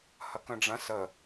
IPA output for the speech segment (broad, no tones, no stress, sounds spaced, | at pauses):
h ɐ k ə̃ ɖ͡ʐ ɐ̃ s ə